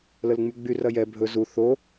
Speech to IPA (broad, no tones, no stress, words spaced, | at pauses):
ləlŋ͡myɡ͡by rɐjɛ bʱɵ zu θo